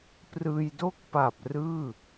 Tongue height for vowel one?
high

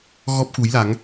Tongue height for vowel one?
mid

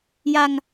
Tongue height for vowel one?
low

